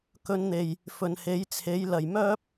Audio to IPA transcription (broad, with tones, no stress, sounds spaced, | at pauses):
k ɵ˨˧ n n̪ e˨˩ j | f ɵ˨ n h e˨˥ j t͡sʰ e˨˥ j l ɐ˨˩ j m œː˥ p̚